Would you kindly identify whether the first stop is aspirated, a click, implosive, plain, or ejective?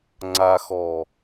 click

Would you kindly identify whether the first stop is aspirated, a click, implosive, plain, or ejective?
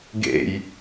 plain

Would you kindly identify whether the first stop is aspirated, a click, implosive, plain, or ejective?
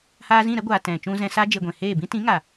plain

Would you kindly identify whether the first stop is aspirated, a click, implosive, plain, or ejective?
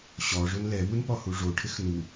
plain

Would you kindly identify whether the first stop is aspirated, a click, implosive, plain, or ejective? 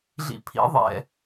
aspirated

